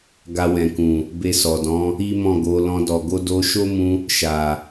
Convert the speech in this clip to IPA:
ɡ a˧ w ɛ̃˨ k ũ˨ | b e˧ s ɔ˨ d ɔ̃˨˦ | i˦ m ɔ̃˦˨ ɡ o˨˦ l ɔ̃˧ d ɔ˨ ɡ o˧ d o˧ ʃ o˦ m ũ˧ | ʃ a˨

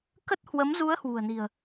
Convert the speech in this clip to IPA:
k ə˦˥ t̚ h w ə˨˦ m z u˨˦ ə̯ h w ṳ˨˩ ə̯ n i̤˨˩ ə̯

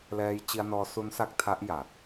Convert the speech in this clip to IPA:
l ɛː˧ j t͡ɕ i˧ a̯ n ɔː˧ s u˦˥ n s a˦˥ k̚ tʰ a˦˥ ʔ j a˨˩ t̚

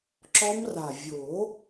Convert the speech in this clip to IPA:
ǁ ɔ˦˥ m r a˨˩ vʲ o˨˩˦

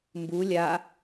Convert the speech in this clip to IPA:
m b u lʲ a

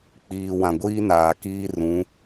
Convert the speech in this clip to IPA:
k͡p iː˨ w ã˨ ɡʷ iː˦ n aː˨ k iː˦ r ũ˨˦

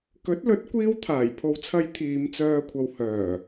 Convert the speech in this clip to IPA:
k ɵ˨˥ t̚ l ɵ˨˥ t̚ kʷ iː˥ w t̪ʰ aː˨˩ j pʰ o˨ w t͡sʰ ɐ˨˧ j t̪ʰ iː˨˧ m t͡s œː˧ kʷʰ ɐ˨ w h œː˨˩

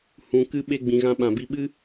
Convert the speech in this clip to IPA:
h ũ˨ k ɨ˧ ɓ e˧ ɡ͡b ĩ˨ ɣ ã˧ ɓ ã˨ b i˧ ɓ ɨ˦

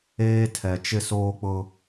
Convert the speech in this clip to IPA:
eː˦ tʰ ɛ˨ t͡ʃ ɪ˦ s oː˦ k͡p ʊ˦

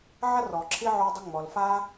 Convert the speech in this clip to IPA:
ʕ ɐ˥ r ɔ˩ ǁʰ i˥ ʕ o˦ dˤ ɪ˦ ŋ͡m ɔ˩ l f a˦

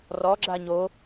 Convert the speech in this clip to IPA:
r ɔ ɡ͡ǁ a ɲ o

